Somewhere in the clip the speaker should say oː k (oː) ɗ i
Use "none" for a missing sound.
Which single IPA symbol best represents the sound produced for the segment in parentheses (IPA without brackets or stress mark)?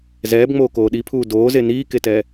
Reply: oː